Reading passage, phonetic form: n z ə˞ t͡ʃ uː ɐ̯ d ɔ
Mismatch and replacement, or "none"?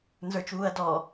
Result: none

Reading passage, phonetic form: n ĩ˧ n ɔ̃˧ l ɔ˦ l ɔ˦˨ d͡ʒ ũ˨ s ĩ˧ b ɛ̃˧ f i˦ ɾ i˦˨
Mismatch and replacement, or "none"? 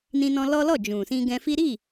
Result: b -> ɡ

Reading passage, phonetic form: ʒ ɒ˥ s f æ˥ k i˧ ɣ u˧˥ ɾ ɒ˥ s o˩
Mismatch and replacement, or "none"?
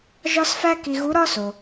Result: none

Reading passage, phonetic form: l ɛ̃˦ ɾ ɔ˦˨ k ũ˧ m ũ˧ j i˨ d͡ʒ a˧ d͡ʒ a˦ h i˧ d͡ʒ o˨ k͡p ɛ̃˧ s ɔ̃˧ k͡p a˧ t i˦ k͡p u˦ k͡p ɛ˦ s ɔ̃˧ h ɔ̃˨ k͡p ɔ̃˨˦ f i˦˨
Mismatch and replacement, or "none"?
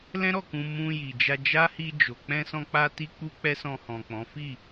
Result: none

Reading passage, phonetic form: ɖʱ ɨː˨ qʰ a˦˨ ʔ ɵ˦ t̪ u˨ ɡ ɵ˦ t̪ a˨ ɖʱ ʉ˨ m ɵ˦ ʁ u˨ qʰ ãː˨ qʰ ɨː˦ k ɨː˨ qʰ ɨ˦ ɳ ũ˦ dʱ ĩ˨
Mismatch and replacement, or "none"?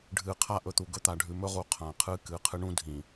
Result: none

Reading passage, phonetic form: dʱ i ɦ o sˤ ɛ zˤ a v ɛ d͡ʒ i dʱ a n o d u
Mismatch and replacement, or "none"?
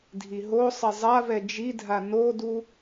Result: none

